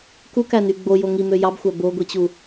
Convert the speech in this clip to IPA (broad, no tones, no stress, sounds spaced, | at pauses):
k u k æ n y ɡ͡b o j o ŋ i m ø j ɑ b xʷ æ b o ɡʷ i t͡ɕ u